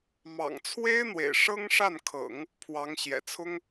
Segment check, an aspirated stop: present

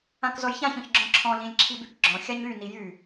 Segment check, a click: present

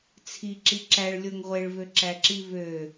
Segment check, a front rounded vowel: present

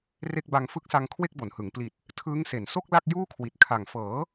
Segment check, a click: absent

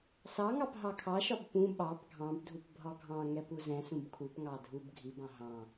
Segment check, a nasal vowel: present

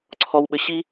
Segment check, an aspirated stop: present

